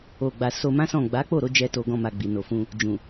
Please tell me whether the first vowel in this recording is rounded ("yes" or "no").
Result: yes